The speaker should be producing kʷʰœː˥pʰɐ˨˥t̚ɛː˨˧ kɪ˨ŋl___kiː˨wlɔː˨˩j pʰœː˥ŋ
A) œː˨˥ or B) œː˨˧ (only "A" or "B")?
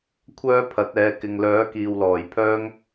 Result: A